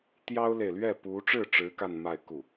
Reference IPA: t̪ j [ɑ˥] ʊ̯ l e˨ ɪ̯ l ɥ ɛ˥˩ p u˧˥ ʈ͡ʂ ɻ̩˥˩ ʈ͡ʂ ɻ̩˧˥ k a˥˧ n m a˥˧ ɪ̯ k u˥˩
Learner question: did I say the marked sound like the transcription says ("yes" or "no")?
yes